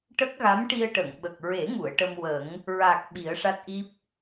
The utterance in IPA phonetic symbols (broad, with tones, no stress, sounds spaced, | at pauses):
ʈ ə˦˥ k̚ ɣ a˧˥ m ʈ i˧ ə̯ ʈ ə˨˩˨ ŋ ɓ ə˨˩ k̚ ɹ e˨˩˦ ŋ u˨˩˨ ə̯ ʈ ə˧ m w ə˨˩˦ ŋ | ɹ a˨˩ k̚ ɓ i˨˩˦ ə̯ ʂ a˦˥ t̚ ʔ i˦˥ p̚